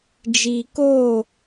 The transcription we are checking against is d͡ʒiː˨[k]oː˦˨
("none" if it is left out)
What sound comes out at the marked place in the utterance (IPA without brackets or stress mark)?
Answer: k